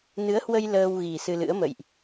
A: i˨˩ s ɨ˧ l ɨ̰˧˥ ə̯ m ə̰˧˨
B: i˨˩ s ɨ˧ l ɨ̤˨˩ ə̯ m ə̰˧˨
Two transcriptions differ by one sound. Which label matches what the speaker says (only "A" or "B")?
A